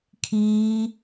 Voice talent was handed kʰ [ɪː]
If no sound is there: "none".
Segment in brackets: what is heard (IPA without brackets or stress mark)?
iː